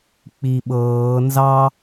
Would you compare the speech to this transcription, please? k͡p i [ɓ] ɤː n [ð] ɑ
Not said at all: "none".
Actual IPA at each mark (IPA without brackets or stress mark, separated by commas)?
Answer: ɓ, z